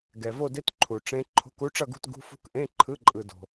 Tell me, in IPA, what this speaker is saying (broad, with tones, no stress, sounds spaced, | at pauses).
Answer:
ɡ ɛ˨ v o˥˧ d e˦˥ t ǃʰ u˨ ʈ͡ʂ ẽ˦˥ ǃʰ o̤˧˥˧ k u˦˥ ʈ͡ʂ ʌ˥˧ ɡ ṳ˥˧ t ɡ ṳ˧˥˧ f ṳ˦˥ k ʔ ẽ˧˥˧ ǃʰ ɯ˧˥˧ ǃʼ ɯ˨ d o̤˨